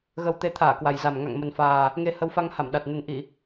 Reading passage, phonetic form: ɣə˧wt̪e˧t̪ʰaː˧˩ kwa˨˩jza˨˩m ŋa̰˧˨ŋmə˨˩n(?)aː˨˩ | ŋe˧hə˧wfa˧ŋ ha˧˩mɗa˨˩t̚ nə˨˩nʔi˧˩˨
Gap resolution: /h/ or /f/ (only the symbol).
f